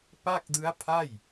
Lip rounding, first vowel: unrounded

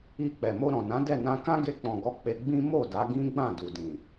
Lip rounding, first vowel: unrounded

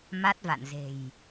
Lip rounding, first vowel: unrounded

